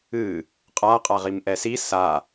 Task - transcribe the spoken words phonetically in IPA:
ɨ | qʼ a qʼ a ʁ i m ʔ ɛ s i s a

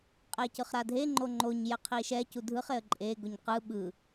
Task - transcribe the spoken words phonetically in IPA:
qʼ e c ɯ χ ɾ a dʱ e ŋ͡ǃ o ŋ͡ǃ o ɲ j ɛ qʰ i ʃ ɛ c u dʱ ɯ χ e ə̯ ǃʼ e ɡ o ɲ q ɯ ɓ ɯ

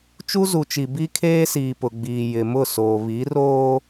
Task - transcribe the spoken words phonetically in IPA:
t͡ʃ u˦ z u˨ t͡ʃ i˨ b i˦ kʰ eː˦ s iː˨ p ʊ˨ ɡ͡b iː˨ j ɪ˨ m ʊ˦˨ s oː˨ β i˨˦ r oː˦

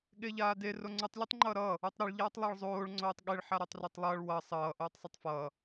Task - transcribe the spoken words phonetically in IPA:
ɠ e ʎ aː d e r o ŋ͡ǀ u tˤ lʲ o tˤ ŋ͡ǃ ʌː ɾ ʌː | u tˤ ɾ ʌ ɭ ʎ aː tˤ lˠ a ɭ zˤ oː ɭ ŋ͡ǀ oː tˤ ɠ e ɭ ħ a ɾ a tˤ r a tˤ lˠ ʌː ɭ w ʌ sˤ ʌː ʔ oː tˤ sˤ ɯ tˤ f ʌː

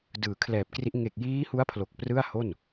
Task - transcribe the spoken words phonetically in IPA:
d ɯː˨˩ kʰ l ɛː˨˩ p̚ k r i˦˥ ʔ ŋ e˨˩ k̚ j iː˦˥ h u˦˥ a̯ pʰ l o˨˩ k̚ p r ɯ˥˩ a̯ h o˥˩ n

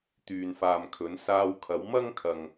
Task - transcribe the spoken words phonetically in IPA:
t̪ yː˨ n f aː˨ m kʰ ɵ˨˥ n s aː˧ w kʰ ɐ˨˥ w m ɐ˥ ŋ kʰ ɐ˨ ŋ

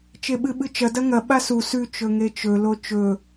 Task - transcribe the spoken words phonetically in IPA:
t͡ʃ e ɓ ɨ ɓ ɨ t͡ʃ ɐ d ɐ ŋ ɐ ɓ a s u s ʉ t͡ʃ ɵ ŋ e t͡ʃ ɵ l o t͡ʃ ɵ

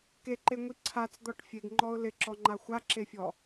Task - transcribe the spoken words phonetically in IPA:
k e ǃ e ŋʷ i ǀʰ a t͡s d̪ ɔ ʈ fʲ e ɡ ŋ͡ǃ ɔ ʊ̯ l ɪ ǁ ɔ ŋ͡ǃ a xʷ a ǁ e fʲ ɔ

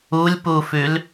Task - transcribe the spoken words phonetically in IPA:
u lʲ p u f ʉ l

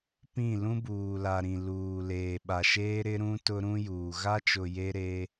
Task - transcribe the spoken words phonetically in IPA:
p ĩ˦˨ l ũ˦ b uː˨ l a˨ ɾ ĩ˨ l uː˨ l eː˨ ɓ a˨ ʃ eː˦ ɾ ɪ˦ ɾ ũ˦ t ʊ˦ ɾ ũ˦ j uː˨ ɣ a˦ t͡ʃ ʊ˨ j e˦ ɾ e˦

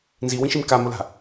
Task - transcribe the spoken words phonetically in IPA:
n z i w ĩ ʃ i m k a m ʊ l a̤

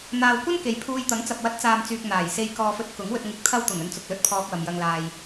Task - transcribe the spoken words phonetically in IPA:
n̪ aː˨ w kʷ ɐ˥ n k e˨ j pʰ uː˧ j t̪ ɐ˨˥ ŋ t͡s ɐ˨ p̚ w ɐ˨˥ t̚ t͡s aː˨ m t͡s yː˨ k̚ n̪ aː˨˩ j s e˧ j k ɔː˧ f ɵ˧ t̚ k ʊ˨˥ ŋ w ɵ˧ t̚ ŋ ɪ˧ k̚ t̪ʰ ɐ˥ w t̪ ʊ˨˩ ŋ ɵ˧ n t͡s ʊ˨ k̚ l ɵ˧ t̚ pʰ ɔː˧ k̚ w ɐ˨ m j ɐ˧ ŋ l aː˧ j

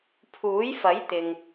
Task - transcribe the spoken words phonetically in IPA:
pʰ uː˨˥ j f ɐ˨˥ j t̪ ɪ˨ ŋ

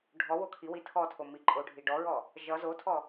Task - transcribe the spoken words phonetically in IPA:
ɖʱ ɔ w o kʰ i w i tʰ ɔ tʰ o m i ǃʼ o ɖʱ i ɖ ɔ ɹ ɔ | ʒ ʌ z o tʰ ɔ

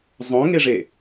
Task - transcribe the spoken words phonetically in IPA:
zˤ õ ŋ e ʐ e

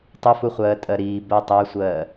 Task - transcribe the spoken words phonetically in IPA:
tˤ ʊ f u χʷ ɜː tʼ ɜ ɾ iː b ɜ tˤ æ sʷ ɜː

